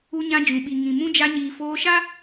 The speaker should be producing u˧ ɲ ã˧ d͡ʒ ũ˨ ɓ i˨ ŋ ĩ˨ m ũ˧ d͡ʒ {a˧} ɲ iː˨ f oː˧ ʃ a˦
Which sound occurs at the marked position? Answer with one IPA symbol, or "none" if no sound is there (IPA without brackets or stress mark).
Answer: a˧